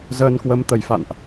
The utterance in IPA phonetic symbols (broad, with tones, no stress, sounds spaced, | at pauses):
z əː˧ n k w ə˧ m t̪ ə˧˩ j f a̰˧˨ n ʔ